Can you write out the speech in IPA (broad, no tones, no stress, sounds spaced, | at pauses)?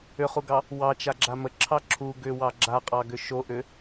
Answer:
ʏ χ u ɡ ɑ | w ɑ t͡ʃ a ɡ͡ǁ a m ə ǁʰ ɑ ǁʰ u ɡ ʏ w ɑ ɡ͡ǁ a qʼ ɑ ɡ ʏ ʃ o ʔ ʏ